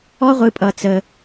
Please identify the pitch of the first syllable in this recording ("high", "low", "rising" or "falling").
high